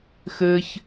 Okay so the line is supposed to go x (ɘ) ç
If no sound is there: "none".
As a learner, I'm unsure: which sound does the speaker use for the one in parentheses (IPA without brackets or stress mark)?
ɘ